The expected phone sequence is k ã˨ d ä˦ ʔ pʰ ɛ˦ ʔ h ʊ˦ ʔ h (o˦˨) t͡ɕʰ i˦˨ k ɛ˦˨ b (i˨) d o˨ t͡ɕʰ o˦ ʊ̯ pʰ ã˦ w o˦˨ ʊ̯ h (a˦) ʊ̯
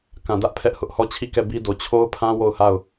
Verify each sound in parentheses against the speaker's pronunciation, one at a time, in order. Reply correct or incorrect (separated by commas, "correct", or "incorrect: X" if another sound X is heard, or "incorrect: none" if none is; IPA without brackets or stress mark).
incorrect: ɔ˦˨, incorrect: i˦, incorrect: a˦˨